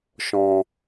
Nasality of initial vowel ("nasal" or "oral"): nasal